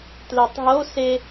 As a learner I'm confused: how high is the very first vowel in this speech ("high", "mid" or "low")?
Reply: mid